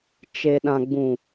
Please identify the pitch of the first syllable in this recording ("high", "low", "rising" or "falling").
low